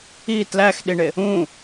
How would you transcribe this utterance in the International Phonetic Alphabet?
i t l æ x ɗ i ɳ e | ũ

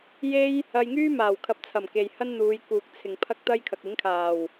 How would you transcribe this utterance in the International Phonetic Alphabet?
j e˥ j | ɐ˧ j ŋ yː˥ m aː˨˩ w kʰ ɐ˨˥ p̚ t͡sʰ ɐ˨˩ m k e˨ j h ɐ˥ n n̪ uː˨˧ j k uː˨ k̚ t͡sʰ ɪ˨ ŋ pʰ ɐ˥ k̚ t̪ ɐ˥ j kʰ ɐ˨ k̚ ɪ˨˥ ŋ kʰ aː˨˩ w

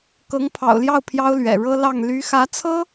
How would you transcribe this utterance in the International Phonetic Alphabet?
k ɤ˧˥ ŋ pʰ ɑ̰˨˩ ʊ̯ l j ɑ˥˩ ʊ̯ pʰ j ɑ˥ ʊ̯ l ɥ ɛ̰˨˩ ɻ ɤ˥ l ɑ˥˩ ŋ l y˧˥ x ä˧˥ t͡sʰ ɤ˥

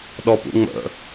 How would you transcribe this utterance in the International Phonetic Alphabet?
ɗ ɔ p ṵ ŋ͡m ə̰

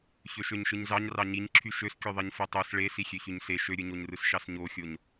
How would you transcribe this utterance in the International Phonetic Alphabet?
ç ø ʃ ø ɲ ʃ ɯ ɲ z ɑ ɲ r ɑ ɲ i ɲ ǁʰ y ʃ ø s kʲ o ðˤ i ɲ f o tˤ o s ɭ e s i xʲ ø ç y ɲ s e ʃ ø ɾʲ ɯ ɲ o ɲ r ɯ s ʃ ɑ s ɲ o xʲ o ɲ

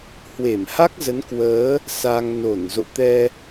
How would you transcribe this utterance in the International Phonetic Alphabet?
h w e˧˩ m h a˦˥ k̚ z ə˨˦ n k w əː˨˦ | s a˧ ŋ n o˧˩ n z o̰˧˨ t̪ ɛ˧

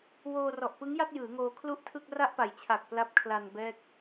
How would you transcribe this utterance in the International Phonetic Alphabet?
w oː˧ r ɔ˨˩ ʔ p ɯ˦˥ ŋ j a˥˩ t̚ j ɯː˩˦ ŋ oː˧ kʰ l u˥˩ ʔ tʰ ɯ˥˩ k̚ r a˥˩ ʔ p a˨˩ j t͡ɕʰ a˨˩ k̚ p l a˦˥ p̚ kʰ l a˧ n b ɛː˥˩ k̚

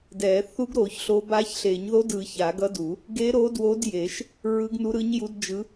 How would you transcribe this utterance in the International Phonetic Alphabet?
d ɛ˨˩˦ θ u˧˥ ɡ ɾ o˨˩˦ ç ɬ o˧˥ b a˧˥ ç ɬ e˨˩˦ ɲ ð o˧˥ d ɯ˨˩˦ ç a˨˩˦ ɡ ʌ˧˥ d u˨˩˦ | ɡ e˧˥ ɾ o˧˥ d w o˧˥ d j e˨˩˦ ʃ | ɹ ɯ˧˥ ɡ n u˧˥ ɾ ɯ˧˥ ɲ j u˧˥ d d͡ʒ ɯ˧˥

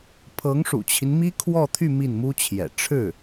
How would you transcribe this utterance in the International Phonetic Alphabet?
pʰ ɤ˧˥ ŋ ʂ ṵ˨˩ t͡ɕʰ i˦ n m i˥ kʰ w ɔ˥˧ t̪ʰ y˥˧ m i˥˩ n m u˥ t͡ɕʰ j ɛ̰˨˩ ʈ͡ʂʰ ɻ̩˥˩

